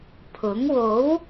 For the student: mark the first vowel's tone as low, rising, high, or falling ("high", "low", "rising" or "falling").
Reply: rising